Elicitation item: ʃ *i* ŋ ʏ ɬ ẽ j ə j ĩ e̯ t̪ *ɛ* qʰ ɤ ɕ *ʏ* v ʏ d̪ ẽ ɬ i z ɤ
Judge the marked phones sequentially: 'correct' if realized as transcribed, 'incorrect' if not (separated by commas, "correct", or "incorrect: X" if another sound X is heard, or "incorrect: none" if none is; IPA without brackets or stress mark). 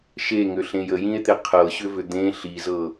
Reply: incorrect: e, incorrect: e, correct